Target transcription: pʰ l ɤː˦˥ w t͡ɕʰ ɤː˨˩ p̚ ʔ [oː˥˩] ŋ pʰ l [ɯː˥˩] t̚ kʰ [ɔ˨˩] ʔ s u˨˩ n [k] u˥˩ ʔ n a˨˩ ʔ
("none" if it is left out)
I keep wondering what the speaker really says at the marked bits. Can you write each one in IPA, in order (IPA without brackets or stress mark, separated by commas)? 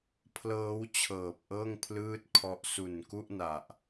ɤː˥˩, ɯː˥˩, ɔ˦˥, k